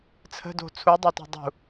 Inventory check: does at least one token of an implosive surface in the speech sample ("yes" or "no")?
no